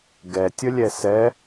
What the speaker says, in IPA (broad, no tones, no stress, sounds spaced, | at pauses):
ɡ ɛ tʲ ə lʲ ɛ s ɛ